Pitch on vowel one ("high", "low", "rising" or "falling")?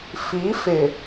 rising